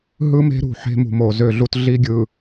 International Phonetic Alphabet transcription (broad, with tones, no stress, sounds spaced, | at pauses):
ɦ ɯ˦ m e̤˦ ɾ ṳ˨ ħ e̤˦ m ṳ˨ m o˨ z ø˦˨ ɮ u˦ t ɮ i˦ ɡʲ ɯ˨